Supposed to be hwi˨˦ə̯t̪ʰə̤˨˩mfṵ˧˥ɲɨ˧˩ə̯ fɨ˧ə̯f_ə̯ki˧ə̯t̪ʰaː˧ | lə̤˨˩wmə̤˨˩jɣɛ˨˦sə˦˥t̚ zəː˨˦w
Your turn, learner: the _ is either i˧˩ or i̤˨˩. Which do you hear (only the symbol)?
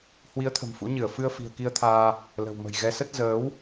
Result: i̤˨˩